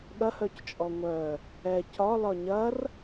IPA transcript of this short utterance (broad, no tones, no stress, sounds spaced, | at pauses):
ɠ ɐ h œ c t͡ʃʼ ɔ ŋʷ œ | ɛ c ɒ l ɒ ɲ ɐ r